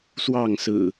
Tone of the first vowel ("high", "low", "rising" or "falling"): falling